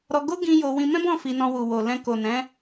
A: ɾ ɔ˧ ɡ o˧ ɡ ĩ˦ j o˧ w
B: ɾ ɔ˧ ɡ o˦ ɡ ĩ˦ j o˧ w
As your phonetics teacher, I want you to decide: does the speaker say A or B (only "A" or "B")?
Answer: B